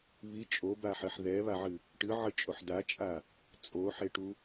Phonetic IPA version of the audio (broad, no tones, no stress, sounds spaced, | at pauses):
β i t͡ʃʼ o b a ħ ɘ ħ ð ɛ β a ʕ ɨ | ʈ ɨ ʕ ɨ t͡ʃʼ o ħ d a t͡ʃʼ a | t͡sʼ o ħ e ʈ u